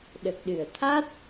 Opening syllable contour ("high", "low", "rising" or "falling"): low